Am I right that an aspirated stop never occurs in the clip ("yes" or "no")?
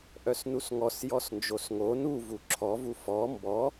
no